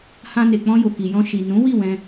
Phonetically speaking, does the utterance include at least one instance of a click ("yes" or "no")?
no